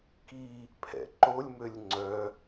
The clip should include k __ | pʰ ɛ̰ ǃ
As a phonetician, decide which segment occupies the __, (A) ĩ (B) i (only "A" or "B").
B